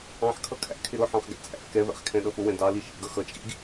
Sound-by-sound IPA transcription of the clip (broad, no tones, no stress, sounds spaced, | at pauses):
ɑ̃ ħ kʰ ʌ kʰ æ̰ kʰ ɪ ɾ ʊ ħ ɑ̃ χ ɡ æ̰ t͡sʼ æ̰ f k ɛ v æ̰ χ kʰ ɛ̃ ɗ ʌ f ʊ w ɛ̃ d ɑ l i ʃ ḭ ɡ ʌ x ʌ t͡ʃʼ ḭ ɡ